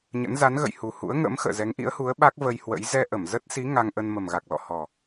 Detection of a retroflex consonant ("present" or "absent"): absent